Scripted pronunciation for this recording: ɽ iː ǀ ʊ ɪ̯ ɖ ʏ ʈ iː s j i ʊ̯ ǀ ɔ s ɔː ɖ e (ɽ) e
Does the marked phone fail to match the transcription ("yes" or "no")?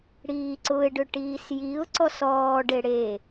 no